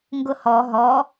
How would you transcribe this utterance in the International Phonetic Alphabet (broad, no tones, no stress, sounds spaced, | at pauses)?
ŋ ɡ ʊ h ɔ ɦ ɔ